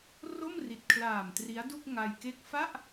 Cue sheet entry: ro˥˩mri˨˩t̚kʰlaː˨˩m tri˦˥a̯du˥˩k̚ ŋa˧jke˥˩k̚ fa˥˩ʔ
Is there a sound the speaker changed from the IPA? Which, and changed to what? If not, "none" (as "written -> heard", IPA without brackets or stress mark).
none